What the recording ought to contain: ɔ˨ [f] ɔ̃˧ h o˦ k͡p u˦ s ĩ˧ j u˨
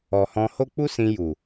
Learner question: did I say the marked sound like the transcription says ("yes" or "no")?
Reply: no